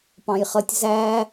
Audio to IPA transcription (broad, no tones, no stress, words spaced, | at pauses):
pɑ̃jχʌtʲ zæ